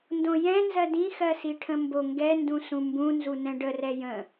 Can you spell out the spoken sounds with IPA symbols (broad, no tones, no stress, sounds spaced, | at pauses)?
n d õ j ɛ̃ n z ɜ d ĩ x ɜ s i ʈʰ ə̃ m b o ŋ ɡ ɛ n d ũ s ũ m b ũ n z u n ɛ̃ ɖ ə r ɛ j ə̃